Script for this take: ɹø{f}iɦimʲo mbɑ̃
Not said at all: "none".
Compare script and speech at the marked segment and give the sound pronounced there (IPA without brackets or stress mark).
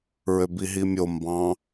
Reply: b